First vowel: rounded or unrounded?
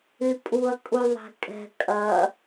rounded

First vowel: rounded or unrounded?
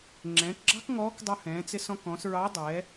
unrounded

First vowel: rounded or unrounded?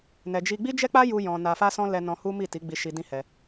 unrounded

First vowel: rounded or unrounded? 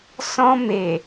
rounded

